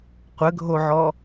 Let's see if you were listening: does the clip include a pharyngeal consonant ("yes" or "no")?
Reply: yes